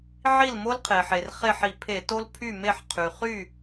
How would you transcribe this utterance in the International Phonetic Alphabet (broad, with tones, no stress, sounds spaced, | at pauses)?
ʕ i˥˩ l m o˥ l qʰ e˩ ħ e˩ r χ e˥˩ ħ i˧˩˧ pʰ e˧˩˧ t o˥ l pʰ y˥˩ m e˥˩ ħ qʰ y˩ χ y˥˩